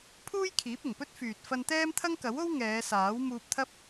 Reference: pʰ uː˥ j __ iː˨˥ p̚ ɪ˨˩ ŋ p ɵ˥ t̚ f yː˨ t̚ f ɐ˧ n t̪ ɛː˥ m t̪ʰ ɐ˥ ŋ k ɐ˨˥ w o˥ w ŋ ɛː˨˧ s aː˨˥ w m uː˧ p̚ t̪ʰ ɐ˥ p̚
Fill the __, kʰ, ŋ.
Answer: kʰ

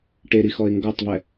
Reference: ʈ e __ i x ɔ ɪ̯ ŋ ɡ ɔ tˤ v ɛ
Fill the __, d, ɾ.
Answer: ɾ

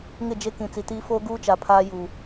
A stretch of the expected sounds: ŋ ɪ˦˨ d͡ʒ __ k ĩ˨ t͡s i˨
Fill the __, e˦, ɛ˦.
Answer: e˦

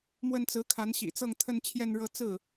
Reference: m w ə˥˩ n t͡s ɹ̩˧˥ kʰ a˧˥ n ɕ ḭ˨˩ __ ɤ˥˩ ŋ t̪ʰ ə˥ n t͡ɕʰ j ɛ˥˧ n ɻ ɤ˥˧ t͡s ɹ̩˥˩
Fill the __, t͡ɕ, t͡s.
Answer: t͡s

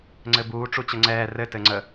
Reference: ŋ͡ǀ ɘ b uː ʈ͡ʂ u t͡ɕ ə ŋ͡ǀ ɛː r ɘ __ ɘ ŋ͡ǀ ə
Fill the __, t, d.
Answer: t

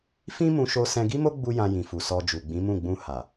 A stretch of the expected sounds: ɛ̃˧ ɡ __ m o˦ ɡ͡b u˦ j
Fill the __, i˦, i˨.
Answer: i˦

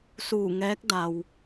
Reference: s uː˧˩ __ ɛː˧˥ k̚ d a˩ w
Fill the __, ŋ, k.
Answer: ŋ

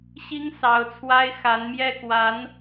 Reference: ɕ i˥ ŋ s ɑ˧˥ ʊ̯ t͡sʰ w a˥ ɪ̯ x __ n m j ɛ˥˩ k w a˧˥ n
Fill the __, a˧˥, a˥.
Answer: a˧˥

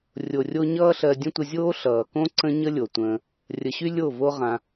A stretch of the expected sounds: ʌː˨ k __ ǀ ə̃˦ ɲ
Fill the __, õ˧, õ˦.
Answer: õ˦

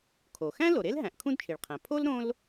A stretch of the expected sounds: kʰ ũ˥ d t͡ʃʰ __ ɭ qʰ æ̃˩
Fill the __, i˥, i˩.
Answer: i˩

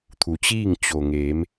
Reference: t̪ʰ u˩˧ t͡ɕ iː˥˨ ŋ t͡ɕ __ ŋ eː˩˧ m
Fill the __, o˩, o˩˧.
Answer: o˩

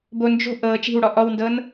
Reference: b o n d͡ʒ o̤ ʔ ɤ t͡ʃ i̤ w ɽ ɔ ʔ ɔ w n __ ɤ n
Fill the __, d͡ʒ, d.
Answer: d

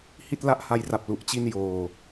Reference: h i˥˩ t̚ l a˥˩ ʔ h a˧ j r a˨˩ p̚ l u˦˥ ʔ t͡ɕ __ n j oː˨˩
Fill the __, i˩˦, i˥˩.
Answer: i˥˩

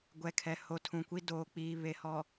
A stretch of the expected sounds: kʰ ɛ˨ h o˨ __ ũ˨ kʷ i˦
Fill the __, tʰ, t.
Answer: tʰ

